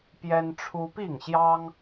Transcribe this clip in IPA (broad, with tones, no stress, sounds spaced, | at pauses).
p j ɛ˦ n ʈ͡ʂʰ u˦ p i˥˨ ŋ ɕ j ɑ˦ ŋ